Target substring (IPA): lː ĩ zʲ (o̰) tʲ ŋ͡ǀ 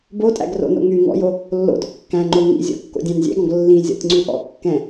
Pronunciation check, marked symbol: incorrect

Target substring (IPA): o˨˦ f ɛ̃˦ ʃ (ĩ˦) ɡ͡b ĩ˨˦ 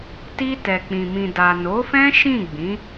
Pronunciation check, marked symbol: incorrect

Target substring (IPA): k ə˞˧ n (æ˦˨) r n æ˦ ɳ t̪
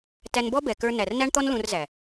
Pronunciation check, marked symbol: incorrect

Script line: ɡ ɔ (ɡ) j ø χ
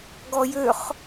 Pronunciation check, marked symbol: incorrect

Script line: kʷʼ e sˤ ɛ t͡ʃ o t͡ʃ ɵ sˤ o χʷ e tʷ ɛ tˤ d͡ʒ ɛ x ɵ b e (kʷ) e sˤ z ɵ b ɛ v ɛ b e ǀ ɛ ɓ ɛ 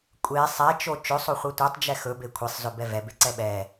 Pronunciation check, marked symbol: incorrect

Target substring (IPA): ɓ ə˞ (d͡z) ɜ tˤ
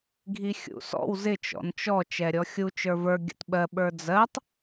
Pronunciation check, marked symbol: correct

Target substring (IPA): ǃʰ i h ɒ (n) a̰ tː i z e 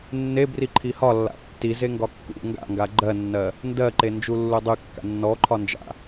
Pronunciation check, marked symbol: incorrect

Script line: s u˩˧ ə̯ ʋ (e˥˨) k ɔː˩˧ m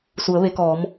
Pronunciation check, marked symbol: incorrect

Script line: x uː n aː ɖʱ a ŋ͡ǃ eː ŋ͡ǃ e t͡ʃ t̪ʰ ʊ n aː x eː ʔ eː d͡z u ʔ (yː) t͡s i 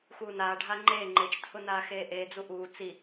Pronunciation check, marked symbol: incorrect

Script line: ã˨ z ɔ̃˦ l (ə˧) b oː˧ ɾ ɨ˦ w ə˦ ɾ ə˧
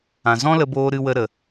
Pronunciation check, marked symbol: correct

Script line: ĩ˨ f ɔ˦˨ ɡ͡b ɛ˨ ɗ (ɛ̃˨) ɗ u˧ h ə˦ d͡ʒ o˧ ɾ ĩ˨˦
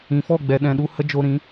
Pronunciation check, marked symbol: correct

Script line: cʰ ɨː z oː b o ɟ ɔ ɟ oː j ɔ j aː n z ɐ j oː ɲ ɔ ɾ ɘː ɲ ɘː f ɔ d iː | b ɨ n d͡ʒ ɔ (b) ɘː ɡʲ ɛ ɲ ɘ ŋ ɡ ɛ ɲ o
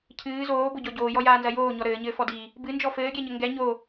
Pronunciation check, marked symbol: incorrect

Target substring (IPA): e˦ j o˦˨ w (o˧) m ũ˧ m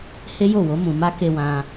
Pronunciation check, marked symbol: incorrect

